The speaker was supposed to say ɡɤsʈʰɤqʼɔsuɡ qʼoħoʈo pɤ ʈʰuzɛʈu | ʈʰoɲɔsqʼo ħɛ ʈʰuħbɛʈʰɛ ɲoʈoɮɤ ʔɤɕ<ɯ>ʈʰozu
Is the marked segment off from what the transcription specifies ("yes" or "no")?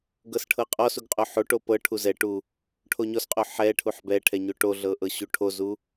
yes